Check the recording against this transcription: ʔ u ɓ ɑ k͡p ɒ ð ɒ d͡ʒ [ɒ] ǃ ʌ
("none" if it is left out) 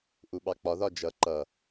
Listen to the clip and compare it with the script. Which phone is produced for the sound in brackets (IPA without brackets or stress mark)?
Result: ʌ